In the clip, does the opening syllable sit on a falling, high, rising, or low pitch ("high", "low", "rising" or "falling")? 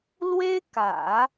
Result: high